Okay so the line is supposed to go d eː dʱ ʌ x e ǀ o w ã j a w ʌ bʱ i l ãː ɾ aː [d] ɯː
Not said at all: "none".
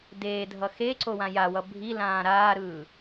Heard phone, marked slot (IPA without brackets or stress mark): ɾ